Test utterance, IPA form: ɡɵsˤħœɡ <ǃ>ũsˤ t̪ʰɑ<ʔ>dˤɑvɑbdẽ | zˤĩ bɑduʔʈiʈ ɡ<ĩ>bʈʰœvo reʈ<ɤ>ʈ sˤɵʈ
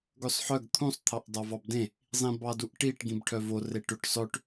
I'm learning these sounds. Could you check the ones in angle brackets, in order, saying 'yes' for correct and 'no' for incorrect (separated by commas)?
no, yes, yes, no